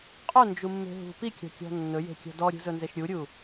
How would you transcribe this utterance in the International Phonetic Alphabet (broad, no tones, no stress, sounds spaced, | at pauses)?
qʼ ɵ n d͡ʒ u mː e̤ ɦ ṳ p i kʲ ɔ̤ kʲ ɔ̤ nː ɵ j e̤ kʲ ɔ̤ d ɔ ɾʲ ṳ z ɵ n z e ʃ ɾʲ u ɾʲ u